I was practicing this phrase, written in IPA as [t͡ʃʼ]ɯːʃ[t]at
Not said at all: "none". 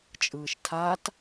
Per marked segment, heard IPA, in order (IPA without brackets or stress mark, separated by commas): t͡ʃʼ, tʰ